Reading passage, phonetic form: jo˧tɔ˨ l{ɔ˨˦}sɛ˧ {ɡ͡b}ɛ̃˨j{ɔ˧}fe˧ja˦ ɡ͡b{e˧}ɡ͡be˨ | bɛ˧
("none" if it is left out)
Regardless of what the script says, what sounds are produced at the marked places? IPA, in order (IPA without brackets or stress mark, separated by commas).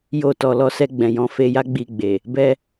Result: ɔ˧, ɡ͡b, ɔ̃˧, i˧